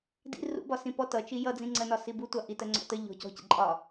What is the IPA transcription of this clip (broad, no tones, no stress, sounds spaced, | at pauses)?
d ḭ r ṵ b ɒ s ĩ p ɔ t ʌ t͡ʃ i j ʌ d͡z ĩ ŋ͡ǀ ɜ n ɒ s i b u tʷ ɑ ʔ i t ɜ ŋ͡ǀ ɔ̰ t ə ʎ ɔ̤ c ɔ̤ c ə̰ ǃʼ ɒ